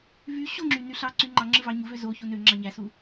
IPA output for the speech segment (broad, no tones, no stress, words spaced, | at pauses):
vy ɕoŋ͡ǁy nyɬɑ ǀyŋ͡ǃɑ ŋ͡ǁɯvɑɲuvø zo çunø ŋ͡ǁɑɲæsu